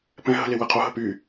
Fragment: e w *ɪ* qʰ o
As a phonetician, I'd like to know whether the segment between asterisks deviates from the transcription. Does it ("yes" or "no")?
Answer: yes